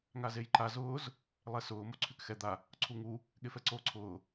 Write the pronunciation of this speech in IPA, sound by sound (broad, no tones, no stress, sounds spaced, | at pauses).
ŋ a z e j ǃ a z ʊː z | lˠ ɛ s ʊː m o ǀʰ y k x ɛ d̪ a | ǀʰ u ŋ u | ɠ e f ɛ ǀ oː ǀʰ ʊː